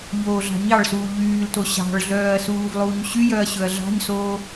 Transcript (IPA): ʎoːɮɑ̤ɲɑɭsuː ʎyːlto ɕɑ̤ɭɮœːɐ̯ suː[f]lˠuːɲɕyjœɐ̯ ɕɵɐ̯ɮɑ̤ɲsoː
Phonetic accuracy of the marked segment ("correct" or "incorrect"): incorrect